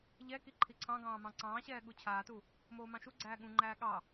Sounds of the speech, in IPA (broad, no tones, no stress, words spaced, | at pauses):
ʎɛ kiǃʰiǀʰɑ̃ɡɑ̃ː mɑ̃ǀɑ̃ːɕɛː ɠut͡ɕʰaːtu | moːmɑ̃ʃuɡ͡ǀæː ɠũŋ͡ǃæː ɠɑ